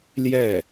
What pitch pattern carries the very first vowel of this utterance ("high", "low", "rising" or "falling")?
falling